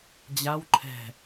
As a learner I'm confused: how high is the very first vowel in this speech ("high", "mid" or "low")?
low